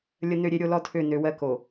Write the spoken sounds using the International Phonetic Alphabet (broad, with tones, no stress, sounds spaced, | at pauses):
lʲ ə˦ n ø˦ ɾʲ e˦ ɾʲ o˦ l ɔ˦ tʰ ø˦˨ n ø˦ w ɜ˦ k o˨